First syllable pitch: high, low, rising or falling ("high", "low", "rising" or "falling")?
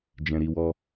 low